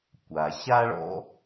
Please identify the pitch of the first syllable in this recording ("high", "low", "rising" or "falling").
low